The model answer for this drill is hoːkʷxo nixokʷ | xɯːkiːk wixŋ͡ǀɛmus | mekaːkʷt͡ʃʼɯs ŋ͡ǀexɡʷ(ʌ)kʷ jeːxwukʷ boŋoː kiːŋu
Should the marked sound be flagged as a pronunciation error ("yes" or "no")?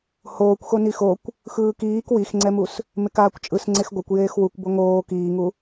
no